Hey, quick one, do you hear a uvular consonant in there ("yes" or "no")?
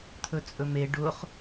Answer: yes